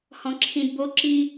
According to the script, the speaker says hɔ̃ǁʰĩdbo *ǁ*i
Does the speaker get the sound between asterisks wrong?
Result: no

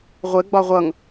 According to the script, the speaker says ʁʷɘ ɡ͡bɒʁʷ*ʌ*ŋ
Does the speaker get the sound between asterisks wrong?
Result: no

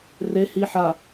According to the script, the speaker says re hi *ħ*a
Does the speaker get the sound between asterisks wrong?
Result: no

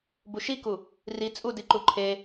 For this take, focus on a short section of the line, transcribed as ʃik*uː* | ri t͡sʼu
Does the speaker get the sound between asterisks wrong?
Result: yes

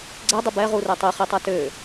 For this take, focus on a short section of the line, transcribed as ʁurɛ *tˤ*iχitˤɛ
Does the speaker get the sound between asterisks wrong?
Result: no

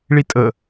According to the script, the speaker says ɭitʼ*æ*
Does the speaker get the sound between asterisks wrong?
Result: yes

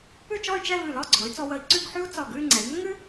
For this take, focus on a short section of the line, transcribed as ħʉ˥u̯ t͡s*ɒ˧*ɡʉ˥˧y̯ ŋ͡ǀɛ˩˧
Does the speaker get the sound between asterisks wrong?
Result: yes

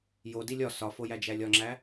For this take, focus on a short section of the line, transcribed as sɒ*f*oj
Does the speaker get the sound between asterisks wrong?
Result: no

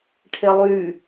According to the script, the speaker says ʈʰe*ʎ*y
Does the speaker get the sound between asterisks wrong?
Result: yes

